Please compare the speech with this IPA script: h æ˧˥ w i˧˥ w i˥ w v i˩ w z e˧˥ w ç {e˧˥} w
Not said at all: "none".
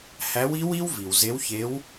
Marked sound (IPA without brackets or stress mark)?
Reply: e˧˥